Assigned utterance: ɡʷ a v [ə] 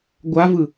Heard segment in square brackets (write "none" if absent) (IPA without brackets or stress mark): ɯ